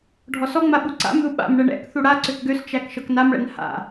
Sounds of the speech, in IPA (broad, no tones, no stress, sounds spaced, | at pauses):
ɖʱ ɔ s ɔ ŋ͡m a ɓ u ǀ a̰ m ð u ɓ a̰ m ɳ ɛ ɳ ɛ̰ k θ u ɽ a ǀ ø k ɡ ø s t͡ʃ æ k ʃ ɤ k n a m ɭ ɛ̰ n h a̰